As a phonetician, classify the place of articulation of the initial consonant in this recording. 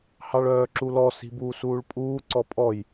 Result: glottal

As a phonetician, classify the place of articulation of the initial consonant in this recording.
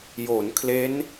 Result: palatal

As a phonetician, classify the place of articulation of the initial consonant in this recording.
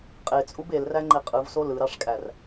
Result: uvular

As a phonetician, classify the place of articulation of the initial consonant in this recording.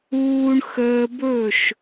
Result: retroflex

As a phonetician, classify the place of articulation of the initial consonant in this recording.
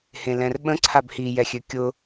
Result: glottal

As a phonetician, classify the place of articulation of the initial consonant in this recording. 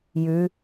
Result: palatal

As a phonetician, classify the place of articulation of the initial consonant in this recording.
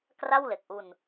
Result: velar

